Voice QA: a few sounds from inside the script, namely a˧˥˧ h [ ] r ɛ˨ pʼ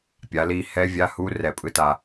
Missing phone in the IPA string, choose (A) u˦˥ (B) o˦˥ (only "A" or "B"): A